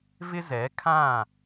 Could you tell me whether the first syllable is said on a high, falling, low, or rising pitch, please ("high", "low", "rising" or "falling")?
high